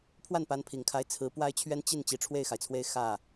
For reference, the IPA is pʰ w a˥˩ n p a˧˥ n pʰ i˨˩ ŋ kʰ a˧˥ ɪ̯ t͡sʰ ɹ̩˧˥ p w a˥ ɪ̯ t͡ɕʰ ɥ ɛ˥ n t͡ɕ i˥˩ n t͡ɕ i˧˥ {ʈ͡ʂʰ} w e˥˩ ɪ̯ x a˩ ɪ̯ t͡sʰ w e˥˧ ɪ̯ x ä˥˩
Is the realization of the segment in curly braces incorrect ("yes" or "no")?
no